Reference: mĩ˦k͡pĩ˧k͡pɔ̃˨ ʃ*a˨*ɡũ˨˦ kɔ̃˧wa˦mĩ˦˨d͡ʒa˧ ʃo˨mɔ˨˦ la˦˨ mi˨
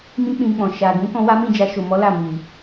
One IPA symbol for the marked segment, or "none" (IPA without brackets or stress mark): a˨